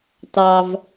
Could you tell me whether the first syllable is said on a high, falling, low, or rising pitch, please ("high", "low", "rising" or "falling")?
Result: low